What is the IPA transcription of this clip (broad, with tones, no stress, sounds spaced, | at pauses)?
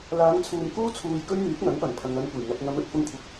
l aː˨˧ ŋ t͡sʰ uː˨ m k uː˥ t͡sʰ uː˧ j k ɵ˥ ɥ m yː˨˥ k̚ ŋ ɐ˨˥ ŋ p ɐ˨˩ n pʰ ɐ˨ ŋ ɐ˧ n kʷ e˨˩ j ŋ ɐ˨ p̚ ŋ ɐ˨˧ m ɵ˨ t̚ f ʊ˧ ŋ kʷʰ ɪ˧ k̚